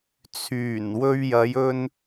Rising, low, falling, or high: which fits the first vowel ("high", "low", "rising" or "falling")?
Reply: low